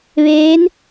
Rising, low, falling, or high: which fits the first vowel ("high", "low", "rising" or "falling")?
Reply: rising